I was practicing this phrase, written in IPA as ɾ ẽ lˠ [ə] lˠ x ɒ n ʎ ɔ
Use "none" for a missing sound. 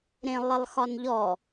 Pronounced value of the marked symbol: ɪ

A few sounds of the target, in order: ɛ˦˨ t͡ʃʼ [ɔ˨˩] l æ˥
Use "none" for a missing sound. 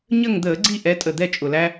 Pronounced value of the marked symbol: ʊ˨˩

